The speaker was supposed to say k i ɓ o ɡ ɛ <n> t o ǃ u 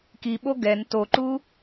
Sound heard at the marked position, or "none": n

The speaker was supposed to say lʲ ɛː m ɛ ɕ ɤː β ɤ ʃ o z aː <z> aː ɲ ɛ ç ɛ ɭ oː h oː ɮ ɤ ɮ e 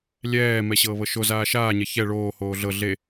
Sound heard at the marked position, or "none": ʃ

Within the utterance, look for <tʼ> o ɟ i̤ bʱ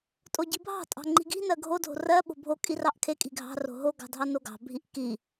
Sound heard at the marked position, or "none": tʼ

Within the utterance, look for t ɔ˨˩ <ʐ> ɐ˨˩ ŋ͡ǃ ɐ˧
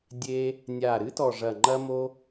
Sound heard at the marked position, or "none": ʐ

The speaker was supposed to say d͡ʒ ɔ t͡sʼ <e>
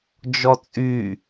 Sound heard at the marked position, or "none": y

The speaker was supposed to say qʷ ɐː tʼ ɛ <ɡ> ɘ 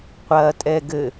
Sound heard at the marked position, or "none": ɡ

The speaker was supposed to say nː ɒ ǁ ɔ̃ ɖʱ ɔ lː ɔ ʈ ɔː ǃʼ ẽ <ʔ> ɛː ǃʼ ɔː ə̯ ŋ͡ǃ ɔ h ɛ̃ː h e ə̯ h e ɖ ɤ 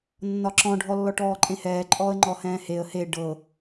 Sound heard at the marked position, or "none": h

